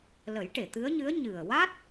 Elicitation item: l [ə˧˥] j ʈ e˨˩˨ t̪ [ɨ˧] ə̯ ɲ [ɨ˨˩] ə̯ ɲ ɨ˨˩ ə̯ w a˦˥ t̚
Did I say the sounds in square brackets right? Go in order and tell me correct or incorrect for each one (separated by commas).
incorrect, incorrect, incorrect